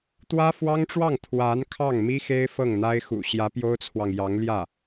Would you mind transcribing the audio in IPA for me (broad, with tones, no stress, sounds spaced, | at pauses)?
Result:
t̪ w ä˥ f w ɑ˥ ŋ ʈ͡ʂ w ɑ˥˩ ŋ t̪ʰ w a˧˥ n kʰ ɑ˥˩ ŋ m i˥ x e˥ ɪ̯ f ɤ˥˩ ŋ n̪ a˥ ɪ̯ x ṵ˨˩ ɕ j ä˧˥ p j o˥ ʊ̯ t͡sʰ w ɑ˨ ŋ j ɑ˧˥ ŋ l j ä˥˩